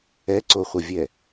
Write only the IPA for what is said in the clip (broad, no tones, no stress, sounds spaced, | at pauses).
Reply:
ɛ ǀ o χʷ ə vʲ ɛ